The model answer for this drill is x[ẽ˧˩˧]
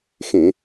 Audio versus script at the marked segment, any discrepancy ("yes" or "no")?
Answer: no